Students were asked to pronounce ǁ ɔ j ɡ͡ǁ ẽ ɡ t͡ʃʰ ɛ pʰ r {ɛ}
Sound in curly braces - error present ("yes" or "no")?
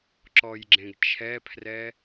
no